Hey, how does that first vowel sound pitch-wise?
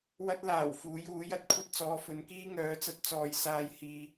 high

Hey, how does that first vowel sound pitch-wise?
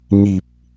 low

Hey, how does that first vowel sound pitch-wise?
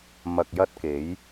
low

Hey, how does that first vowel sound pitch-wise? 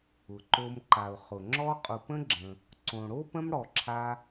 low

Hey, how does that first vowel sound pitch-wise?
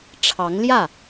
rising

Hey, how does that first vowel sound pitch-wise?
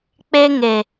high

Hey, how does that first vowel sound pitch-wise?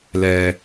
low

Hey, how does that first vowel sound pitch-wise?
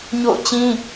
falling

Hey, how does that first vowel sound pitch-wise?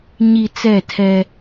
low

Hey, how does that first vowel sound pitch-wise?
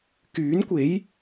rising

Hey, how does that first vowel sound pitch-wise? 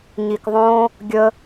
low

